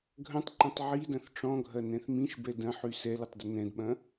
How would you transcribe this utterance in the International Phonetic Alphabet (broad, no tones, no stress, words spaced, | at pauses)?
ɡʱɐ̃tˤǃɐ̃tˤ ʕidɐ̃θ ʈ͡ʂɔ̃ɡʱɐnɛ̃θ mĩʃbɛ dɐ̃ħy sɛlɘtˤdə nɛ̃dɓɐ̃